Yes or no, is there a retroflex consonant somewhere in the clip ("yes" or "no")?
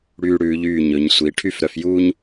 yes